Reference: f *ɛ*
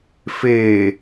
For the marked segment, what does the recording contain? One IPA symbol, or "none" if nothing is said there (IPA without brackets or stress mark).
e